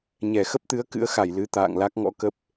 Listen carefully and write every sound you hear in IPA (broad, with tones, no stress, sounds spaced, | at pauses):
ɲ ɛ˧˩ x ə˦˥ p̚ t̪ ɨ˨˦ ə̯ k ɨ̰˧˥ ə̯ x a˧˩ j l ɨ˨˦ t̪ a̰ː˧˨ ŋ l a˦˥ k̚ ŋ ɔ̰˧˥ k ə˦˥ p̚